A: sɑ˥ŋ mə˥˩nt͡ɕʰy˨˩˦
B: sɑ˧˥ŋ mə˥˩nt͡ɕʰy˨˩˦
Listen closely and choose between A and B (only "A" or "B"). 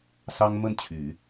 A